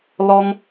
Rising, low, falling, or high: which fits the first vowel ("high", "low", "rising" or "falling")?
high